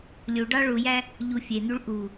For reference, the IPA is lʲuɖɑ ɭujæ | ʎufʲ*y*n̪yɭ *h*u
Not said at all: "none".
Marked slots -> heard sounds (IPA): e, ʔ

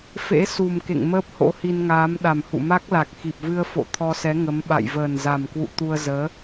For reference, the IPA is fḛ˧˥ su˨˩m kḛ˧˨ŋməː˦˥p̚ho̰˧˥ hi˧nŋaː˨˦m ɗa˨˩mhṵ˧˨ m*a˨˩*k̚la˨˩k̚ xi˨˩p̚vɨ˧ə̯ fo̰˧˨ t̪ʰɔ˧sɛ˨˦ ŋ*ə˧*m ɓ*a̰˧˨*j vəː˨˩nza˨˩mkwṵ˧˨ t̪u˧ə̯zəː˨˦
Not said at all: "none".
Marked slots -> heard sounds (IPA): a˦˥, ə˨˦, a̰˧˨

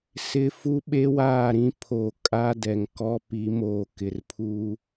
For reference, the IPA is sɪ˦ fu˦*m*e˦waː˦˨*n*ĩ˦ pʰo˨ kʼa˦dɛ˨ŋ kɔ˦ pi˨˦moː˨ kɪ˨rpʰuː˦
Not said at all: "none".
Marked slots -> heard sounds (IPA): ɓ, ɾ

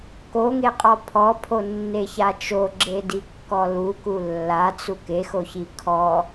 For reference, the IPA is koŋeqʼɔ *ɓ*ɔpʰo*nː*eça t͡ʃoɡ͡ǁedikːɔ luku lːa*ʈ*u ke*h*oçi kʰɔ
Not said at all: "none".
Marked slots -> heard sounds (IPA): pʰ, nː, t͡s, x

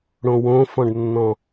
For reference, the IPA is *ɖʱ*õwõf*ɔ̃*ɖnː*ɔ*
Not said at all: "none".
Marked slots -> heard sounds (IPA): ɽ, ɔ̃, ɔ̃

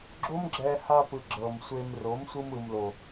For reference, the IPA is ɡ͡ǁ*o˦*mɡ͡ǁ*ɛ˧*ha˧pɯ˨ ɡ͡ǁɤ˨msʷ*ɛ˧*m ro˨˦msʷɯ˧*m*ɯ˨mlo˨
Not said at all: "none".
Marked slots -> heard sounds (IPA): o˦, ɛ˧, e˧, m

